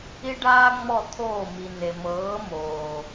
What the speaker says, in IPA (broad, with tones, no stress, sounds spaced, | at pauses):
i˦ ɖ aː˦ ŋ͡m ɔ˦˨ t̪ʰ oː˦˨ m i˨ n e˨ m ɤː˨˦ m oː˨